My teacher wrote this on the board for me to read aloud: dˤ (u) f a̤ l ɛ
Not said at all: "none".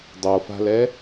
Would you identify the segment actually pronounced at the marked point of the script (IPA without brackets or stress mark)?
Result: o